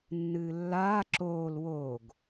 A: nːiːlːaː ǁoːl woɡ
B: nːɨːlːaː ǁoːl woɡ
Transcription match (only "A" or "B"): B